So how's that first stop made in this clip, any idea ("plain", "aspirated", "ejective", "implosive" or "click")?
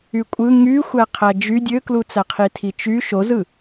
ejective